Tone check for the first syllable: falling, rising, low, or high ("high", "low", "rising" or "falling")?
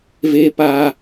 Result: high